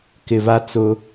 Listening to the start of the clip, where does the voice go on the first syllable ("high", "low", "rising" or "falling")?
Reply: low